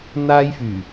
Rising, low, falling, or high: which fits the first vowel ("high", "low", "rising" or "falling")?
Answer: high